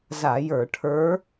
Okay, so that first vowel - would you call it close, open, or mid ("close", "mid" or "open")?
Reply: open